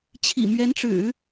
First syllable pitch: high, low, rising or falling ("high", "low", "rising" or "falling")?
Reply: low